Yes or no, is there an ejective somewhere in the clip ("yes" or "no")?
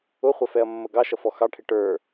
no